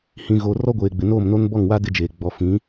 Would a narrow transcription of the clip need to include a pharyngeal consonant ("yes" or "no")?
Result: no